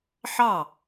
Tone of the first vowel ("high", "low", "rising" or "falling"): falling